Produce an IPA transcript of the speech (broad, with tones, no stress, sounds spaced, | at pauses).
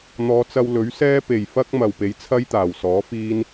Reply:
n̪ ɔː˨˧ t͡s ɐ˧ w l ɵ˨˥ ɥ s ɛː˥ p e˨˩ j f ɐ˥ k̚ m ɐ˨ w p e˨˥ j t͡sʰ ɐ˥ j t̪ aː˨˩ w s ɔː˨˥ f iː˥ n